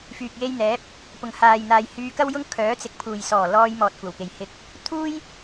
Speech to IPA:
fyː˨k̚je˧jn̪ɛː˨˥p̚ | pʊ˨˩ŋhaː˨jn̪aː˨j hyː˧kɐ˥wjʊ˥ŋ kʰœː˨˥t͡sɪ˨˥k̚pʰuː˨˩j sɔː˨˩lɔː˧jmɔː˨t̚ kʷɐ˨˩wke˨˩j hɪ˨k̚ | t̪ʰuː˥j

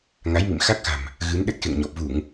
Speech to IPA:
ŋa˨˦jmḭ˧˨mxa˦˥k̚xa̤˨˩m | ɣɨ˨˦nɗə˦˥t̚xḛ˧˨ŋɲɔ˨˩p̚ vu˧˩˨ŋ

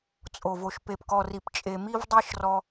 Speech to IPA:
t͡sʼo˨vo˨ʃ pe˨pkɔ˨ri˨pt͡ʃʼe˨ mi˦vdˤi˦ʃ rɔ˦

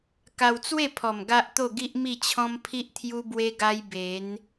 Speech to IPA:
ka˧wt͡swe˥˧pʰɔ˨˩m ɡa˦ʔt̪o˥˧ɡi˦ʔ mi˥˧t͡ɕʰɔ̃˦mpʰi˦ʔ t̪ʰju˦bwe˦ɡa˦j be˨˦n

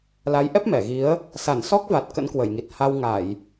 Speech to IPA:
la˨˦jʔɛ˦˥p̚mɛ˧˩ɣi˨˦ə̯ | sa˧˩nsɔ˦˥k̚va˨˩t̚ kə̰˧˥nkwə˧˩jŋi˨˩t̚ ha˧wŋa˧˩˨j

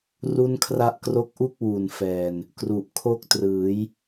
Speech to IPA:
ru˥˩nkʰra˥˩ʔ kro˦˥k̚ʔu˥˩k̚ wu˨˩nfɛː˨˩n | kru˨˩ʔkʰo˥˩k̚ trɯː˩˦j

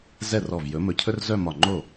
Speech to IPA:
zɛ˥˩rɔ˧˩vjɵ˨˥ mɵ˧˩cʰɵ˥r zœ˥˧mɒ˧˩ŋ͡ǃo˥˩

